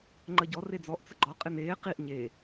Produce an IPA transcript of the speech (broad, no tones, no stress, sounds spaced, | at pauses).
ŋ͡ǃ ə ɟ ɔ r e d͡z ɔ ʔ t͡s ə ɡ͡ǃ ɔ qʼ ɪ n eː q i ʔ ɲ e